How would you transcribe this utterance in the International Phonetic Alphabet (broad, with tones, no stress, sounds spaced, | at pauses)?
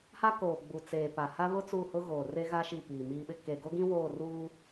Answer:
h a˦ k oː˨ ɡ͡b u˨ t͡s eː˨ p a˨ h a˦ β ʊ˦ t͡s u˦˨ h ʊ˦ ɣ oː˨ r e˦ ɣ a˦ ʃ i˦˨ p iː˨ m iː˦ ɓ ɪ˦ k e˨ ɡ o˦ ɡ ĩ˦ w oː˦˨ r uː˦